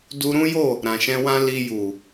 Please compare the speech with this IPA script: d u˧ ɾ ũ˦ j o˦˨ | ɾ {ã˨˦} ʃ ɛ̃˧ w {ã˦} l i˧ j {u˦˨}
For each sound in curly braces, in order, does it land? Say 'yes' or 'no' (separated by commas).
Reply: no, yes, no